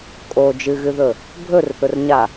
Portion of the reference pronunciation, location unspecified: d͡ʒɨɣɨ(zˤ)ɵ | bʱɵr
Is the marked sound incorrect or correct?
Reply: incorrect